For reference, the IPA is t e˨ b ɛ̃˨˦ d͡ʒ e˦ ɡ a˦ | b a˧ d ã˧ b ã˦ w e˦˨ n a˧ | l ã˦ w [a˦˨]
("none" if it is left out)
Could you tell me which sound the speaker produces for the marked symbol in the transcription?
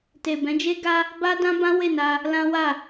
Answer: a˦˨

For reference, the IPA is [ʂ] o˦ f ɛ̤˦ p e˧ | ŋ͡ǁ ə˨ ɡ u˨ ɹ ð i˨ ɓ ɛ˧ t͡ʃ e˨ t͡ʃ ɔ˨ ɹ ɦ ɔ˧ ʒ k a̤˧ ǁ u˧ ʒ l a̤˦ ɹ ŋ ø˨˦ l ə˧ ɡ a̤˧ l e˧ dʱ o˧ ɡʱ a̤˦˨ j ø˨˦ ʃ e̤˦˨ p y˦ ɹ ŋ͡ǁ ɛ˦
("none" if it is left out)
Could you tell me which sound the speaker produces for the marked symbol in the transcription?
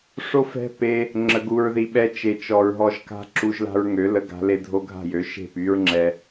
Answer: ʂ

